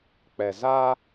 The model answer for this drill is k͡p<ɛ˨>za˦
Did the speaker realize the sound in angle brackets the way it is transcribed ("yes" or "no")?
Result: yes